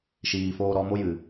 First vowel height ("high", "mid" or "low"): high